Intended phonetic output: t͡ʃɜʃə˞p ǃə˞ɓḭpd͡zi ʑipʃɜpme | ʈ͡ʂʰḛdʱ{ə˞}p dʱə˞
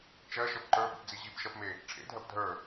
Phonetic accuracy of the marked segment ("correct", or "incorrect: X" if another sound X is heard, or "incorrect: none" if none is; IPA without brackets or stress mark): incorrect: ɜ